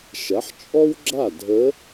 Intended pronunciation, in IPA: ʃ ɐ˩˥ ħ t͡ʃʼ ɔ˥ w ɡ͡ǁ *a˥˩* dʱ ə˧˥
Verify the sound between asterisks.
correct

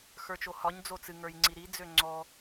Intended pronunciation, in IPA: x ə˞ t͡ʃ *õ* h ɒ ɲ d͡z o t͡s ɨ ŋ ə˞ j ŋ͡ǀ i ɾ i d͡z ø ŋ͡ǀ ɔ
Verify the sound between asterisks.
incorrect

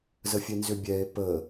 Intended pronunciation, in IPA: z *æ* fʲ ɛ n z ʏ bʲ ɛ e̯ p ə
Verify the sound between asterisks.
incorrect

